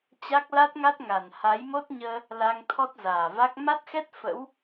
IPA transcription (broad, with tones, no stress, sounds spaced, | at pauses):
t͡ɕ a˦˥ k̚ l a˦˥ t̚ ŋ a˦˥ t̚ ŋ a˨˩ n h a˨˦ j m o˦˥ t̚ ɲ əː˧ | l a˧ ŋ t̪ʰ ɔ˦˥ t̚ z aː˨˩ v a˦˥ k̚ m a˦˥ t̚ x ɛ˦˥ t̚ f ə̰˧˥ w